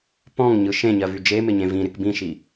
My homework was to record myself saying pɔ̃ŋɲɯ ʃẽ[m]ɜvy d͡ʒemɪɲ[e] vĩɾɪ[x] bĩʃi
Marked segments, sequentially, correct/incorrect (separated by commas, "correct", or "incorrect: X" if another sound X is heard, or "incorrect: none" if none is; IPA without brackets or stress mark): incorrect: ɲ, incorrect: ẽ, incorrect: k